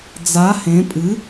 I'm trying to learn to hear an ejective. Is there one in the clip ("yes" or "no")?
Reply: yes